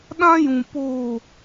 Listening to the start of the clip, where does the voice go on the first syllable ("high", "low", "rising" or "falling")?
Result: high